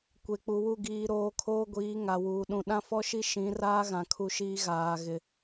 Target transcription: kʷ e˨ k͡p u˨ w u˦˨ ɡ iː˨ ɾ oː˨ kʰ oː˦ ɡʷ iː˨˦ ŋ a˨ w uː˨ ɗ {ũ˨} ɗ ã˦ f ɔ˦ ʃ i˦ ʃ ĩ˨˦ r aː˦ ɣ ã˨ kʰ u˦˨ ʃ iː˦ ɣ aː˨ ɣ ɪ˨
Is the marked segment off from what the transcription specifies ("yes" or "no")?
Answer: no